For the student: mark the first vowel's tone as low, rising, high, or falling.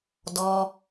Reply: low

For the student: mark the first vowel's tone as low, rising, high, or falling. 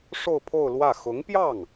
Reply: falling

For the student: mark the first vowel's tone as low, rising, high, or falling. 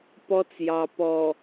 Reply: high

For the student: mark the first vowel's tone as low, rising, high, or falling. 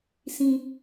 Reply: high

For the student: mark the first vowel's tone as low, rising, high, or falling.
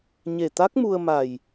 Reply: low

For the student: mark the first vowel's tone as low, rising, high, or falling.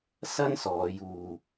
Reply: high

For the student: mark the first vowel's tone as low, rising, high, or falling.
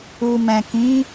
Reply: low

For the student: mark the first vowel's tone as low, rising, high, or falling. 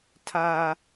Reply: high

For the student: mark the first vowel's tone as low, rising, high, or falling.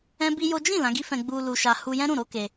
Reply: high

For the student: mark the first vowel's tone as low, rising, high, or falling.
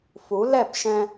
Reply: rising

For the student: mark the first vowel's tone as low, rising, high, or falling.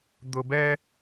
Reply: high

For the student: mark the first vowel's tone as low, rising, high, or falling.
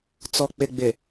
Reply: low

